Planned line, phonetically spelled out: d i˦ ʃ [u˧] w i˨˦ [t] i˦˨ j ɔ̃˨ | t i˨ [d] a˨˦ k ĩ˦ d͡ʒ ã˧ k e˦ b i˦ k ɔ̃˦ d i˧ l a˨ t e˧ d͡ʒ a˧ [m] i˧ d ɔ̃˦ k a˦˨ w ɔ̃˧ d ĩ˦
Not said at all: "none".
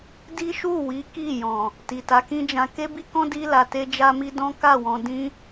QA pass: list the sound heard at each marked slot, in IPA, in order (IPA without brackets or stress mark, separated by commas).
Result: u˦˨, k, t, m